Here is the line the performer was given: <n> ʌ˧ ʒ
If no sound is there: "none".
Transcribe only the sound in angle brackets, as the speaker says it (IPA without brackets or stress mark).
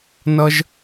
n